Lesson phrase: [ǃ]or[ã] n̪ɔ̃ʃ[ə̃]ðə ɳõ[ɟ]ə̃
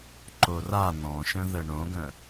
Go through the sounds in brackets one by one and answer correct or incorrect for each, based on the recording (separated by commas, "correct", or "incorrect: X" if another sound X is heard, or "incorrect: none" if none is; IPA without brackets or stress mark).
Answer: correct, incorrect: a, correct, incorrect: ɡ